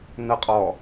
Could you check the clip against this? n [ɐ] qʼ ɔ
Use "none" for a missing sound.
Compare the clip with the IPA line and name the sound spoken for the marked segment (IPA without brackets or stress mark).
ɐ